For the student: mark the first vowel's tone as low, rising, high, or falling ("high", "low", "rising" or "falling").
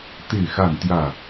falling